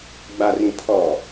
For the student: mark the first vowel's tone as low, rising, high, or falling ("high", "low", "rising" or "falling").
low